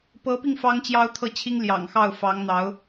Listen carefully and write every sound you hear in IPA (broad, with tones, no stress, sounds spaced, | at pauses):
p ɤ˧˥ p i˧ ŋ f ɑ˥ ŋ t͡ɕ j ɑ˥ ʊ̯ t̪ʰ ɤ˥˩ t͡ɕʰ i˥ ŋ l j ɑ̰˨˩ ŋ x ɑ˥˩ ʊ̯ f ɑ˧˥ ŋ n̪ ɑ˧˥ ʊ̯